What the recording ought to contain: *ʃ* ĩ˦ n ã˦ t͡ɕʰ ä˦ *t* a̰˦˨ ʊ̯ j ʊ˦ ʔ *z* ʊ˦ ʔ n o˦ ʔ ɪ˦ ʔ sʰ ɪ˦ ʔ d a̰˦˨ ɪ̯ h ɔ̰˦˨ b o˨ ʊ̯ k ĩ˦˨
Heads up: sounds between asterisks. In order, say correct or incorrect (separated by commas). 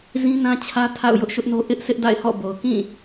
incorrect, incorrect, incorrect